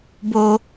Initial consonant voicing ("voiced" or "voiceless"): voiced